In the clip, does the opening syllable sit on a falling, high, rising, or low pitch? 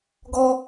high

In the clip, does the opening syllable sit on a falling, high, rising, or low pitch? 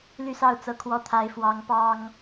falling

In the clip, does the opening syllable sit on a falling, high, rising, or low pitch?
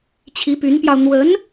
rising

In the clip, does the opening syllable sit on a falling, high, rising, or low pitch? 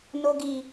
low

